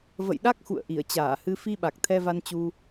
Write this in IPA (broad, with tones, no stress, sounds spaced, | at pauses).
v ə̰˧˨ j ɗ a˦˥ k̚ x ṵ˧˨ ə̯ ʔ i˧˩ ə̯ t͡ɕ aː˧˩ h ɨ˧ f i˧ ɓ a˨˩ k̚ t̪ʰ ɛ˧ v a˧ n t͡ɕ u˧